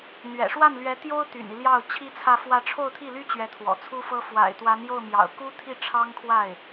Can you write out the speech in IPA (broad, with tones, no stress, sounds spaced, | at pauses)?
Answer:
n̪ ɥ ɛ̰˨˩ ʂ w a˥˩ n l ɥ ɛ˧˥ t̪ j o˥ ʊ̯ t̪ y̰˨˩ n i˦ l j ɑ˥˩ ʊ̯ t͡ɕʰ i˥ t͡sʰ ä˥˧ f w ä˥˧ ʈ͡ʂʰ o˥˧ ʊ̯ t̪ʰ i˥˩ l y˥ t͡ɕ ɥ ɛ˧˥ t̪ʰ w ɔ̰˨˩ t͡sʰ u˥ f ɤ˥ f w a̰˨˩ ɪ̯ t̪ w a˧˥ n j o˥˩ ʊ̯ m j ɑ̰˨˩ ʊ̯ k u˥ t̪ʰ i˥˩ ʈ͡ʂʰ ɑ˥ ŋ kʰ w a˥˩ ɪ̯